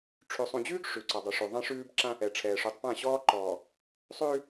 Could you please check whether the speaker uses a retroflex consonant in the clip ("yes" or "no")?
yes